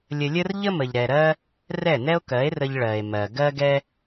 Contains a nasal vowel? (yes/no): no